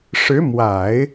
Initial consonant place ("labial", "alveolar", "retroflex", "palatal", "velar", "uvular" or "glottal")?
retroflex